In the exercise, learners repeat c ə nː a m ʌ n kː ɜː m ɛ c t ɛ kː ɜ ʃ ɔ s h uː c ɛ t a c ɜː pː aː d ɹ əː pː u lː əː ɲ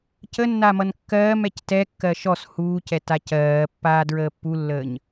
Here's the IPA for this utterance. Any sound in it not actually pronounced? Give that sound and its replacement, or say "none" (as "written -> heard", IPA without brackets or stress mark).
none